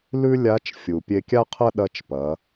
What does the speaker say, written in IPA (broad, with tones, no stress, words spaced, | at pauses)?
lʉ˥lʲa˧˥t͡ʃfʲu˩ pʲe˧kʲa˥qʰɐ˥ ɗɐ˧˥t͡ʃpɐ˩˧